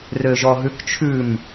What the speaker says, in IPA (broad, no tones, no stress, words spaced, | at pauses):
røʒɔɦʉkt͡ʃʰʉm